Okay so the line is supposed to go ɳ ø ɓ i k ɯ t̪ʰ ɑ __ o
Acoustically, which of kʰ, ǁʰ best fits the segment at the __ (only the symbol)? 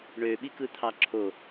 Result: ǁʰ